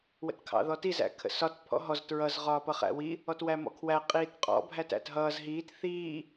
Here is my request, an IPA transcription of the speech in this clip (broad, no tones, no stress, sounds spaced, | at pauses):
w ə̰ t kʰ ɑ̰ ð ɔ t i z æ̰ kʰ ə̰ s ɒ t pʰ ɔ̰ ɦ ɔ z t ɹ ʌ z ʁ ɒː p ʌ χ æ̰ w i | ɔ t w æ m ɔ̰ kʰ w æ qʼ iː t qʼ ɔ̰ bʱ æ t æ̰ t ɦ ʌː z ɦ iː t θ iː